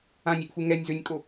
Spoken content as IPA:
ãnʲeʔfu ŋɛnʲzønʲkʼo

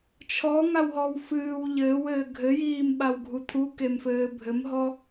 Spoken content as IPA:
t͡ʃʰɔŋawɦɔw fɨːw ʎɘːwɘː ɡʱɘjiːm ɓawɡʱutʰu kemfɘːbʱɘmɦɔ

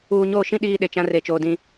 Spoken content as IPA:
uː˨ɲoː˦˨ʃĩ˦ ɗiː˦ɗe˨t͡ʃã˦ re˨t͡ʃoː˨ dĩ˦

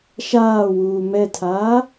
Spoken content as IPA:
ʃaːwuː mɛtʰaː

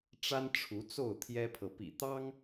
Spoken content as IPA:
ʈ͡ʂa˦n ʈ͡ʂʰu˨˦t͡so˥˨ʊ̯t̪ʰjɛ˦pʰɤ˨ pḭ˨˩t̪ɑ˦ŋ

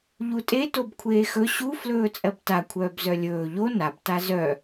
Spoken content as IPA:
ʎutʼe tobkʷʰeːxɵ ɕu flɵːt͡sʼɜbta kʷʰœːbzœlʲɵː ʎo nab tazœ

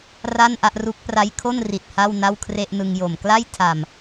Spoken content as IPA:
ra˥˩nʔa˥˩ʔru˦˥k̚ pra˦˥jkʰo˥˩n ri˨˩t̚ ha˥˩wna˥˩w kʰre˥˩ʔnɯ˧ŋ jo˨˩m kla˥˩jtʰa˨˩m

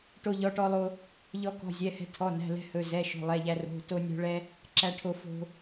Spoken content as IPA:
ʈo˧ʎɔ˩˧˩ʈɔ˧lˠo˧ | ʎɔ˧kɔ̤˩˧˩zʲɛ˩˧˩hɛ̤˧ tʰɔ˩˧˩næ̤˩˧˩ lɛ̤˧hɵ˩˧˩ zɛ˩˧˩ʃo̤˩˧˩ lˠɛ˩˧˩ʎæ˧ ro̤˩˧˩to˧ nʲo̤˧ɭɛ˧ | ǁæ˧ʈʰo˧ fo̤˧

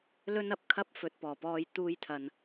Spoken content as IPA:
lɵ˥nɐ˧p̚kʰɐ˥p̚ fɵ˨˥t̚pɔː˨˩pɔː˧j t̪uː˧jt̪ʰɐ˨n

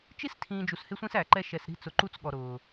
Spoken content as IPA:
t͡ʃi˦stʰĩː˨ d͡ʒu˨shɪ˦sʷĩ˦s æ˨ǃɛ˦ ʃɛ˨s ɾi̤˦t͡sʊ˨ ǃu˦t͡sɠɔ˨ ɾʊː˨

